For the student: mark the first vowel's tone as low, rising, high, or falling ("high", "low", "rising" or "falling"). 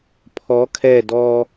rising